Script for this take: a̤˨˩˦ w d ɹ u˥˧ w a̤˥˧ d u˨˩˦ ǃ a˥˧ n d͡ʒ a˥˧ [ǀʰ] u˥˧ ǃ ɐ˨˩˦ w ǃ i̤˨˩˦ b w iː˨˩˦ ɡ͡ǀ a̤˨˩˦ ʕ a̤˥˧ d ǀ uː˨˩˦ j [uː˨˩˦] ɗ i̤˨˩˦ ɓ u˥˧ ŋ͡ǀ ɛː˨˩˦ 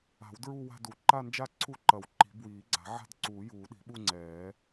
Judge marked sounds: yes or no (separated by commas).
yes, yes